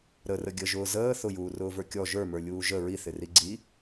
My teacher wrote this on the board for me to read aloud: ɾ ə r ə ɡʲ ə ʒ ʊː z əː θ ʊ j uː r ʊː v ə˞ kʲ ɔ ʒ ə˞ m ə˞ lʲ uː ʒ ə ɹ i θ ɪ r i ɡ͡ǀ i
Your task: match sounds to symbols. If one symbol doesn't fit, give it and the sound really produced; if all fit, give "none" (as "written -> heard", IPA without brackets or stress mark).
none